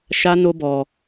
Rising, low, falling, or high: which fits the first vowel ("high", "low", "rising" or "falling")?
high